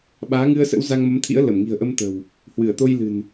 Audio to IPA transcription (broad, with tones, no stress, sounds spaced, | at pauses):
ɓ aː˨˦ ŋ ɨ˧ ə̯ s ə̰˧˥ w z a˧ ŋ m ə˨˦ m t̪ʰ ḭ˧˥ ə̯ l ə˧˩ m ŋ i̤˨˩ ə̯ ʔ ə˧ m t̪ ə̤˨˩ w | h w ɨ˧˩ ə̯ t̪ o˧ j l ɨ̤˨˩ n